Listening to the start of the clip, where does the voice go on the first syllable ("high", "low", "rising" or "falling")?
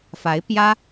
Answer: rising